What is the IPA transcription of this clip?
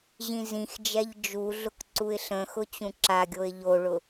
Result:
ʑĩzĩxd͡ʒɛʎ d͡ʒuɮʊk ǀuɪ̯ɬə̃xʊ t͡ɕũǁaɡʲoɪ̯ ʎoɭʊ

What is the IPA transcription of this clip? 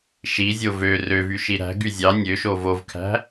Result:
ʃizʲo vø røvy ʃiɾæ̤ ɡyzʲɑ nʲøʃo vovkʰæ̤

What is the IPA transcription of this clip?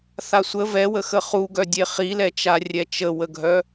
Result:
θasʷə vɛwəxə χuɡœdʲe χilɛt͡ʃa rʲɛt͡ʃəwəɡʱœ

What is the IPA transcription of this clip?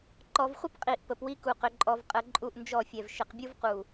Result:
ǃɔ˨vχʷə˦p qʼi˨ʔ pə˨pwi˦ku˨qʏ˨ ǃʼɔ˨vqʼə˨ ǃʼu˦˨ʔnd͡ʒɔ˦˨fʲɛ˨v ʃɪ˨qbʲu˦vqu˨

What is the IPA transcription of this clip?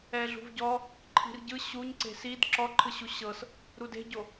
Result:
ɛɮṳvɟɔ | ǃʰi̤rɟɯ ɕuɲ ǀe̤sid ǁɔǃʰɯɕu ɕɤs | ɾude̤ɟo

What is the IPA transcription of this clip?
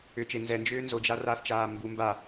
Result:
ʏt͡ʃe nzɛnd͡ʒʏː nzod͡ʒa raθt͡ʃaː mbu mba

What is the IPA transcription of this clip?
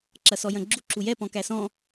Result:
ǁɐsɔjɐ̃ɡ͡ǁu ǁujɛ pɔ̃kæsɔ̃

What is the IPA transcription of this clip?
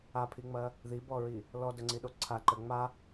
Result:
apʰiŋ͡mɐ | ðibɔɹi | lɔdəŋ͡ǀiɗo ǀʰaǃə ŋ͡ma

